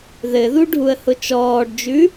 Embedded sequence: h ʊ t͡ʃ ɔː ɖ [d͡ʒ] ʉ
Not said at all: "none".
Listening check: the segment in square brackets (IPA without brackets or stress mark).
d͡ʒ